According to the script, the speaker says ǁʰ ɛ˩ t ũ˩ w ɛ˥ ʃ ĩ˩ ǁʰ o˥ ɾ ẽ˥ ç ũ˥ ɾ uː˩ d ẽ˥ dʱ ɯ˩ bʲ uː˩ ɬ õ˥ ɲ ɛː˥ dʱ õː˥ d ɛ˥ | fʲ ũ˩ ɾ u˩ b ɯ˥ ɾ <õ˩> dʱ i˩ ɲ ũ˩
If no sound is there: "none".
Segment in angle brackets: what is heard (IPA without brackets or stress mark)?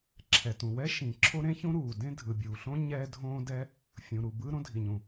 õ˥